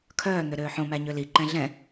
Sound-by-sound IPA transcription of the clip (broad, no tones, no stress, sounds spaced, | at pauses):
kʰ œː n̪ ø ɾ øː ħ õ m æ ɲ ø l i ǃ ɛ̃ ɮ ɛ̃